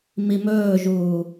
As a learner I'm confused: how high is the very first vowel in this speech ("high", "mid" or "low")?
high